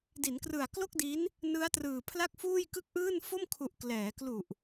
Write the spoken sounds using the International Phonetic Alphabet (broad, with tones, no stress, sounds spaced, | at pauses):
d i˩˦ n k r ɯ˨˩ a̯ k l o˥˩ k̚ d i˦˥ n | n ɯ˦˥ a̯ t r ɯː˨˩ pʰ l a˥˩ k̚ f uː˥˩ j k ɯ˥˩ k̚ ʔ ɯː˥˩ n f o˥˩ m kʰ u˨˩ ʔ k l ɛː˩˦ k l u˨˩ ʔ